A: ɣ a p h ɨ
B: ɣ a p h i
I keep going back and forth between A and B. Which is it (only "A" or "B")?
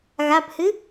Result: A